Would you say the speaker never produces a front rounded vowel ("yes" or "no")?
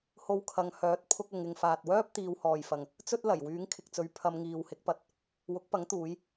no